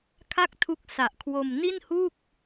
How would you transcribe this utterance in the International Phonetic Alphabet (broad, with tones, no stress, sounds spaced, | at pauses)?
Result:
kʰ a˥˩ k̚ tʰ u˦˥ k̚ s a˨˩ ʔ kʰ w o˧ m n i˥˩ n h u˥˩ k̚